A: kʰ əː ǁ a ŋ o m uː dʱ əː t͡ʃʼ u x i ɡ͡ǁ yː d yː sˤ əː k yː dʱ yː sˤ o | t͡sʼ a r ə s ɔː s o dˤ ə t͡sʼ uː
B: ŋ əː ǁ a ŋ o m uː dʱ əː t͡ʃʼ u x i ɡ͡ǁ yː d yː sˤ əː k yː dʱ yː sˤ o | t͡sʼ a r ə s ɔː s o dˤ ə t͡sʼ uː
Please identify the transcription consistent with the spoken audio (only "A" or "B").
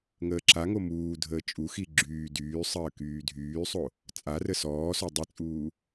B